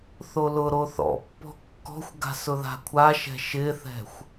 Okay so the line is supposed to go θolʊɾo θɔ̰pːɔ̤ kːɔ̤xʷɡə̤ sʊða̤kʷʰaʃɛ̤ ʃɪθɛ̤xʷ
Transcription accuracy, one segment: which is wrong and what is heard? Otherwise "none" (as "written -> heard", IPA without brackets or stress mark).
ə̤ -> a̤